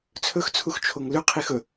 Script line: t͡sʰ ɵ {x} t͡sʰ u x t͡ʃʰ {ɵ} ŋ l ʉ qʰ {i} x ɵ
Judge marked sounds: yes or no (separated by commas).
yes, no, yes